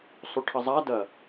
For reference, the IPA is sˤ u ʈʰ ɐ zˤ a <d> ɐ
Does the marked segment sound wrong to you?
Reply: no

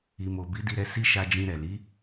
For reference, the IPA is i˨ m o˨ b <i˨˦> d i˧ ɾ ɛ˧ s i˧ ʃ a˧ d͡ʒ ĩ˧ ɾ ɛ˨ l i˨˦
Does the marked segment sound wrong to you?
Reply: no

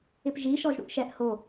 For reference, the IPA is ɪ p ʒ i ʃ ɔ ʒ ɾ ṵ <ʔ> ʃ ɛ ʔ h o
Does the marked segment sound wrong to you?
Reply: no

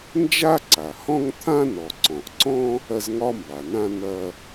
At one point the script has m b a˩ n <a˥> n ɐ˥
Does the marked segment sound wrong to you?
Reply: yes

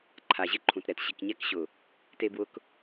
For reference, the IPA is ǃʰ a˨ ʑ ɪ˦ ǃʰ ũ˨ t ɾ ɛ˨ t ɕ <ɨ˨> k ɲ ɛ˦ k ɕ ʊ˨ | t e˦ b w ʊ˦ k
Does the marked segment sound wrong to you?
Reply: yes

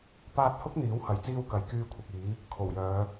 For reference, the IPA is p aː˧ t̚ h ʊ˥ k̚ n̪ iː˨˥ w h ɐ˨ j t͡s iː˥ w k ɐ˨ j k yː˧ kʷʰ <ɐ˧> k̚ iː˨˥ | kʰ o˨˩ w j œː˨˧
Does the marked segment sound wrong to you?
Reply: yes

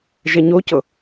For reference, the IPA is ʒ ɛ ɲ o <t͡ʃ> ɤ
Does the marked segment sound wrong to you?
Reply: yes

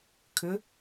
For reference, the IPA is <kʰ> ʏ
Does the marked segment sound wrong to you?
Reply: no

